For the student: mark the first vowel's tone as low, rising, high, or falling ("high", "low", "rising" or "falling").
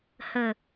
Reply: low